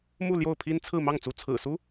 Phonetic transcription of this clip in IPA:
m u˥˧ l j o˥˩ ʊ̯ pʰ i˥ n t͡sʰ ɹ̩˥˧ m ɑ˥˩ ŋ t͡s u˧˥ t͡sʰ ɹ̩˨˩ s u˥

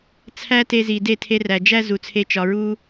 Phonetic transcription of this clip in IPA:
t͡sʰ æ˦ t e˧ z i˨ d e˦˨ tʰ e˧ r æ˨ d͡ʒ æ˦ z u˨ t͡sʰ e˧ t͡ʃ ɒ˨ ɹ u˧

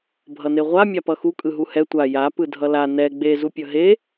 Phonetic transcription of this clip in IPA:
bʱ ʌ n e ʁʷ a mʲ a p ʌ x u kʼ ɯ ɦ u h ɛ tʷ a j a p ɯ dʱ ʌ l a n ɛ ɡ͡b e z u pʲ ʌ ɦ e

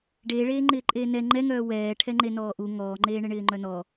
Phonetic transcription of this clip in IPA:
ɖ eː ɭ eː ŋ͡ǃ ɪː ǃʼ eː n ɛ ŋ͡ǃ ɛ ŋ œː w ɛː ʈʰ ɛ ŋ͡ǃ e n ɔː ʔ u ŋ ɔː ŋ͡ǃ eː ɳ ɪ ɳ ɪː ŋ͡ǃ œ n ɔ

